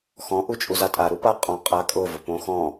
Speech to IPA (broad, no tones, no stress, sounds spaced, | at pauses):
x ɔ̃ ʔ u t͡ʃʼ u z a tʼ a ɾ u p a qʼ ɔ̃ qʼ a kʼ ʊ v ʊ p õ x ɔ̃